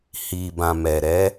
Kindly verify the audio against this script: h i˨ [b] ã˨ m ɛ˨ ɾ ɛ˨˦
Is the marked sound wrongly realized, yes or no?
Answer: no